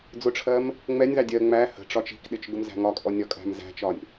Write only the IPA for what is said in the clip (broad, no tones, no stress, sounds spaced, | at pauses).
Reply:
d͡z ʊ ʈ͡ʂʰ ɜ m | ŋ͡m ɛ nʲ ð ɑ dʲ ɜ ŋ͡m æ h ə̤ ʈ͡ʂ ɒ t͡ʃ i̤ k ɗ ɪ t͡ʃ ɡ ʊ m z æ̤ ŋ ɒ kʼ ɔ nʲ ɒ kʼ æ̤ m z æ̤ t͡ʃ ɒ nʲ